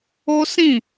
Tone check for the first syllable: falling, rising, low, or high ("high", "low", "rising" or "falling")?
high